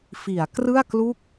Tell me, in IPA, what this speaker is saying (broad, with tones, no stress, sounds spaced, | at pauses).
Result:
f i˩˦ a̯ k r ɯ˥˩ a̯ k l u˥˩ k̚